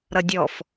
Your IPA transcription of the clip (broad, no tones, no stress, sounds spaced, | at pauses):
ɾ ʌ dʲ ɔ f